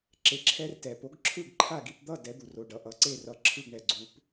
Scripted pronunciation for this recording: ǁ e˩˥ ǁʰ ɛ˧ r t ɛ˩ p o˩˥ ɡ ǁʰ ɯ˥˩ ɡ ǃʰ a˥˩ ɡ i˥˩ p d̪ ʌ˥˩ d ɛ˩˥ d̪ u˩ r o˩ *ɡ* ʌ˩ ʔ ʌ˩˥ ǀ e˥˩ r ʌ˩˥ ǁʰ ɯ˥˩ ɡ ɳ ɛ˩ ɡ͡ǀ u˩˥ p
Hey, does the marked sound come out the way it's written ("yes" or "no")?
no